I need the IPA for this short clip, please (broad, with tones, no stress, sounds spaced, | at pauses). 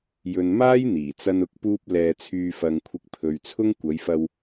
j ɵ˨ n m aː˥ j n̪ iː˨˩ t͡s ɐ˧ n ʊ˨˥ k̚ p uː˧ p̚ l ɛː˧ t͡sʰ yː˧ f ɐ˧ ŋ kʷʰ ɪ˧ k̚ pʰ ɵ˨ ɥ t͡sʰ ʊ˥ ŋ kʷ ɐ˨˧ j f ɐ˧ w